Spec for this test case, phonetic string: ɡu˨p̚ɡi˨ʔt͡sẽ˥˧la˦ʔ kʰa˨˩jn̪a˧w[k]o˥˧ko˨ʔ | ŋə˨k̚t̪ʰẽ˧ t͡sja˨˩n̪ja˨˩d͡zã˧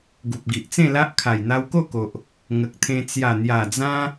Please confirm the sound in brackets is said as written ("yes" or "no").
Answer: yes